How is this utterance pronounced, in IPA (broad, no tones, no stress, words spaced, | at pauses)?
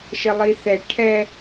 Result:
ʃəlˠiθɛ ʈʰɛ